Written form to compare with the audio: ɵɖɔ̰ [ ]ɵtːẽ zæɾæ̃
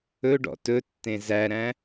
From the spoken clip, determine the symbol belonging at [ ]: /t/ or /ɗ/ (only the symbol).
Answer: t